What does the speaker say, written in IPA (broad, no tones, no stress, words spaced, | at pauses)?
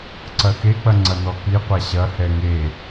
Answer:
ǀɐxek͡pɐ ŋ͡ǀɐnɔkiqʷa ɕɐhɛ ŋe